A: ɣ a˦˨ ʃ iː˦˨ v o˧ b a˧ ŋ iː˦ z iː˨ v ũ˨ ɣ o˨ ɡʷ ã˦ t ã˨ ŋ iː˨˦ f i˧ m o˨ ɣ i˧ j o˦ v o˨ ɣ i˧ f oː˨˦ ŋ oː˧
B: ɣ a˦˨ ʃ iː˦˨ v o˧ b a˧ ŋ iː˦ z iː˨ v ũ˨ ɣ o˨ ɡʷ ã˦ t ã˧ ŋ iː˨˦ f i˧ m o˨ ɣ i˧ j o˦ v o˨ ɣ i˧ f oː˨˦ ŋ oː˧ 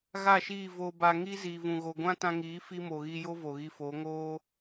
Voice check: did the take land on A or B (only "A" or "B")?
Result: B